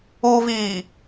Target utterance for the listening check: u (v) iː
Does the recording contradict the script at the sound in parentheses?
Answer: no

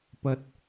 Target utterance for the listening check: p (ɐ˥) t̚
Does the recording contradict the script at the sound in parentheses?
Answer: yes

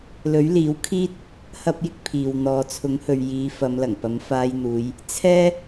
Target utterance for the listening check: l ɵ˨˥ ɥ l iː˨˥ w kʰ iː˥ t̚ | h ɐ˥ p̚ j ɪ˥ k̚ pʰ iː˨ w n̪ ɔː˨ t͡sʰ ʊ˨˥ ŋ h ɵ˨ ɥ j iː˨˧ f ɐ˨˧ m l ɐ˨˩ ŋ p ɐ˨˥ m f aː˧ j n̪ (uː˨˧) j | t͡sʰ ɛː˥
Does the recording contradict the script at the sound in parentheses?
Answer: no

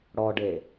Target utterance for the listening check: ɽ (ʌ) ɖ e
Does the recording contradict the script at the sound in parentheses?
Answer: yes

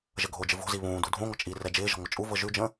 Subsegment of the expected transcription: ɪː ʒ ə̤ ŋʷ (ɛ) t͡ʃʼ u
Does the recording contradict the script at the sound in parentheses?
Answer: yes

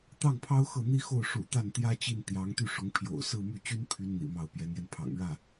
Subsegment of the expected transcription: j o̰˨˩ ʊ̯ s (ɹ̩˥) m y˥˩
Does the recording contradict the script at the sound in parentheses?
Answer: yes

